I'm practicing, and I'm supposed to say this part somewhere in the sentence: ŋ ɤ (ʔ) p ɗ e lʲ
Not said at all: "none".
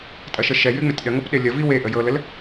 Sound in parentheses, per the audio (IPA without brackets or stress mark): none